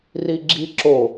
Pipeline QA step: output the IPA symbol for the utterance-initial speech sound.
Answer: r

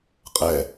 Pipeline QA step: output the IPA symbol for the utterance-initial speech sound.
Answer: qʼ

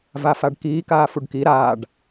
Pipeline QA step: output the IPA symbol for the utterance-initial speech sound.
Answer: v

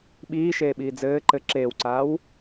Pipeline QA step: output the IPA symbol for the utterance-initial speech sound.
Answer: ɓ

